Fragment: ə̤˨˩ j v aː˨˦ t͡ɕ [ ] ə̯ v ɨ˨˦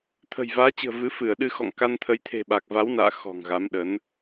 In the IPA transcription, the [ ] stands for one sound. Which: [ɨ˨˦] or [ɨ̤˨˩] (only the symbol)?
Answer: ɨ̤˨˩